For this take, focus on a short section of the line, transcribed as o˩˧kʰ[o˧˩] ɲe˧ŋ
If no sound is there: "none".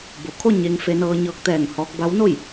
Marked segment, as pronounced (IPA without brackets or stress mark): o˥˨